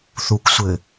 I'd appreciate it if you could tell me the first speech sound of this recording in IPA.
θ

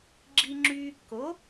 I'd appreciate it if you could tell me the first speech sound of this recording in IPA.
ɡ͡ǁ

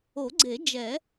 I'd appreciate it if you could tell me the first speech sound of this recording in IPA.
o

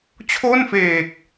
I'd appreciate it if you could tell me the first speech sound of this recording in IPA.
t͡ɕʰ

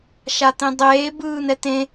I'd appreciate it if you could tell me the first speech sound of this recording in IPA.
ʃ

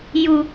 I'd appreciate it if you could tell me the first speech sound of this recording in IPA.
j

